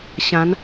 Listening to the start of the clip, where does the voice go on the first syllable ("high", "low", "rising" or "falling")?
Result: rising